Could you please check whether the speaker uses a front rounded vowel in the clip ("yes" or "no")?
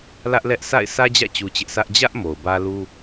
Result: no